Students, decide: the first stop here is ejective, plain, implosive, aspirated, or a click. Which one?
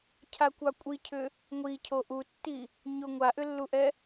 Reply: aspirated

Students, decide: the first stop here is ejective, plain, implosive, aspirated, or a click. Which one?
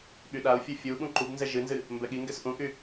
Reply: implosive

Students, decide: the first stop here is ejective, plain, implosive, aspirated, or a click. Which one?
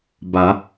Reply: plain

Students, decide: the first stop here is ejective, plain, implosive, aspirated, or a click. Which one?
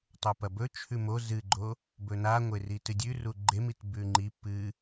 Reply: plain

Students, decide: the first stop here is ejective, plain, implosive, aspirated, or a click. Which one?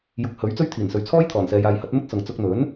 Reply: plain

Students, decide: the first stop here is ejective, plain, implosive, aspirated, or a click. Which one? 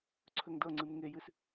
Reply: click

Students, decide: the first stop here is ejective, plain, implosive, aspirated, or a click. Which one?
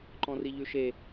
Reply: click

